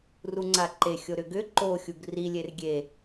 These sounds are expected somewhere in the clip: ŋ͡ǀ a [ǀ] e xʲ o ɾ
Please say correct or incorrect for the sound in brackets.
incorrect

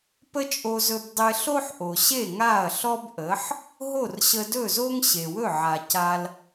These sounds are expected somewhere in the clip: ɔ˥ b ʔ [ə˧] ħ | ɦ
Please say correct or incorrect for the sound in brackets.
incorrect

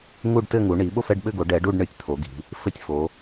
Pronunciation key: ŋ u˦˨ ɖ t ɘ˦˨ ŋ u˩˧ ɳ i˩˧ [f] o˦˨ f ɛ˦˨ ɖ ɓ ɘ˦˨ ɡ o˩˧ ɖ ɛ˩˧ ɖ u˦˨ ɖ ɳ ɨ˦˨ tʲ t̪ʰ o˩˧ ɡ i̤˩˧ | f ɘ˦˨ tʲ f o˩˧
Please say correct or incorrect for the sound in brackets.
incorrect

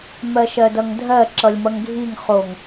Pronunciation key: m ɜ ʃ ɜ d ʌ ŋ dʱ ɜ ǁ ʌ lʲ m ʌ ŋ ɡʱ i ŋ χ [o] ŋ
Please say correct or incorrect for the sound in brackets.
correct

